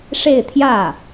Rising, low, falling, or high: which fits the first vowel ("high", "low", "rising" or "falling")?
falling